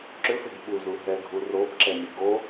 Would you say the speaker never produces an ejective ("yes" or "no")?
yes